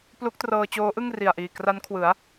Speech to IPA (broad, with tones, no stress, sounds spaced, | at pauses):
p l u˦˥ k̚ t r ɤː˧ t͡ɕ oː˦˥ ʔ ɯ˥˩ ŋ r i˨˩ a̯ ʔ iː˨˩ k r a˦˥ n kʰ w ɯ˩˦ a̯